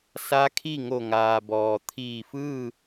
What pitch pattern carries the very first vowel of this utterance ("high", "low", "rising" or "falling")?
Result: rising